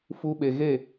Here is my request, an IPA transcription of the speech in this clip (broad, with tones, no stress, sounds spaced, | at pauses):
f u˧ ɓ e˨ ɣ e˦˨